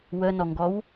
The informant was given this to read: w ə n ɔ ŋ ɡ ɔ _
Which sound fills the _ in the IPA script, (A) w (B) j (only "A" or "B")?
A